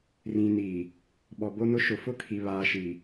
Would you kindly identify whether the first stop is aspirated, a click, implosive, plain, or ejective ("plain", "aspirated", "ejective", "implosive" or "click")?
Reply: implosive